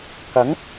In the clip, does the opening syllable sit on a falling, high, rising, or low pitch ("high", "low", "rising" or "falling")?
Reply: rising